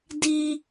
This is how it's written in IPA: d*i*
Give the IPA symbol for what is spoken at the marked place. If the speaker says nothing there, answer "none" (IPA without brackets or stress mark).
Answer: i